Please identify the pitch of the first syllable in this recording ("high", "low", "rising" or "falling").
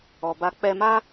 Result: low